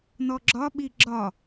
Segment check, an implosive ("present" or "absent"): present